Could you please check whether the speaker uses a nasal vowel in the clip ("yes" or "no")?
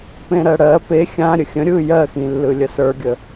yes